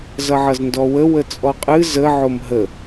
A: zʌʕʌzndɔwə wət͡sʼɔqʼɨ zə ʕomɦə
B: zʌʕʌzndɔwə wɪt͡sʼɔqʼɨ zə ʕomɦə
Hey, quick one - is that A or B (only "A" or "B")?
A